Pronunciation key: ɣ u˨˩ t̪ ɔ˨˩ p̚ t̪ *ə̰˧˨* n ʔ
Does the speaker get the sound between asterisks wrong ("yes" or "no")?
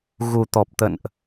no